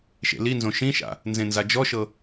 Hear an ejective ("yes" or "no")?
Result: no